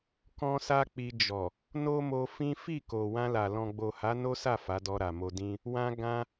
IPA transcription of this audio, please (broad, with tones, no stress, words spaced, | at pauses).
kɔ̃˦sa˦k͡pi˧ d͡ʒɔ˨ | no˦mo˧ fĩ˦ fi˦˨ko˨ wã˧la˨ lɔ̃˨ɡ͡bo˨ha˨˦ no˦sa˦˨ fa˨˦dɔ˧ɾa˨mo˧ dĩ˧ | wã˧ ɡã˧